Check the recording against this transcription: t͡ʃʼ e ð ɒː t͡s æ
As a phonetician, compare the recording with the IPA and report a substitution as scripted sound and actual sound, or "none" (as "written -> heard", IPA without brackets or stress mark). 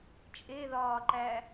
t͡s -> ǃ